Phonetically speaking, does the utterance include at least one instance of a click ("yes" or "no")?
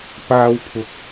no